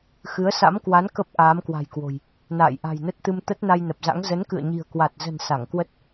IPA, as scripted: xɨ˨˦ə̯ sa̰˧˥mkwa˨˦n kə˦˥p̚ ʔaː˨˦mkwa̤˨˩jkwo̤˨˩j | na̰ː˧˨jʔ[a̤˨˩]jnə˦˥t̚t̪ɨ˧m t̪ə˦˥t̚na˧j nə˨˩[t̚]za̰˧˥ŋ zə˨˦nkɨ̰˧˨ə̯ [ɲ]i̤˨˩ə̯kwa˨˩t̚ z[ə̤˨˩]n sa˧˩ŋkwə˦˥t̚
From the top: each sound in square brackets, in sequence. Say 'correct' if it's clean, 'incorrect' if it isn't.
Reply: correct, incorrect, correct, correct

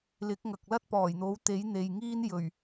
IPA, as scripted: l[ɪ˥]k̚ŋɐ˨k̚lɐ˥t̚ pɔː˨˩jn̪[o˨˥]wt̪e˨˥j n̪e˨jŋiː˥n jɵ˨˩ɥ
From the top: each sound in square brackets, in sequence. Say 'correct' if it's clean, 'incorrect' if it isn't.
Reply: incorrect, correct

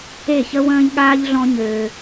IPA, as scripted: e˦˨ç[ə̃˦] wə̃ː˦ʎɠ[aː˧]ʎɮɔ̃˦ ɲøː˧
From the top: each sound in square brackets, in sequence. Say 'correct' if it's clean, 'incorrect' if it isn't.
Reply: incorrect, incorrect

